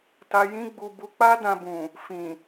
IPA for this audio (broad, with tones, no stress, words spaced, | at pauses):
ta˧jĩ˦ɡ͡bu˧ bu˧k͡pa˦dã˧bũ˨ | fĩ˨